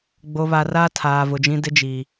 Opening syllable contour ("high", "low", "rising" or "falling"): low